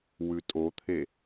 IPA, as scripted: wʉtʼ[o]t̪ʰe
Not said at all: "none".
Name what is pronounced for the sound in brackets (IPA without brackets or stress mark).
o